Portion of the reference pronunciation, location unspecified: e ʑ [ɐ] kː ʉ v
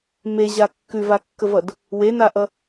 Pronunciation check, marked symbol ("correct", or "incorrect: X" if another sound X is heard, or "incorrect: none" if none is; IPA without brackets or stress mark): incorrect: a